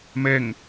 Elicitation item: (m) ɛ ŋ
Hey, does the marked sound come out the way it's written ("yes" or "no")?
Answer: yes